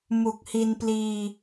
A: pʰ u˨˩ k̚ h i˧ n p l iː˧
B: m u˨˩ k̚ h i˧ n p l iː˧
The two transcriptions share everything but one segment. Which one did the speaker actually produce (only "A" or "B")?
B